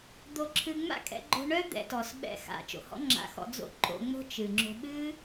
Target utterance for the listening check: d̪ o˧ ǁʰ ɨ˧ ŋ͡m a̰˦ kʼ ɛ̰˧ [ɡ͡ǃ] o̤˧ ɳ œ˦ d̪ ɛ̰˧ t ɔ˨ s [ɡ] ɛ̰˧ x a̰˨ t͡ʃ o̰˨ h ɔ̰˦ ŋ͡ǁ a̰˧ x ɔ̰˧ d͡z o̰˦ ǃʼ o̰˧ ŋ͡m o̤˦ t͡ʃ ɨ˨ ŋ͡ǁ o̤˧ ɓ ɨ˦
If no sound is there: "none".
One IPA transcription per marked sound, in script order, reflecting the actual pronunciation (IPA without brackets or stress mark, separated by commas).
ɡ͡ǃ, ɓ